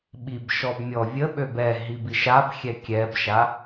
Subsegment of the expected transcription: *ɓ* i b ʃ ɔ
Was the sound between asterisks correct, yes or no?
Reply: yes